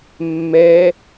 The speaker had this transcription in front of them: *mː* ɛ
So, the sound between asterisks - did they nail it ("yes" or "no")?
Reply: yes